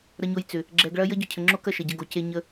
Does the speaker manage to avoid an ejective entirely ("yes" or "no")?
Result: yes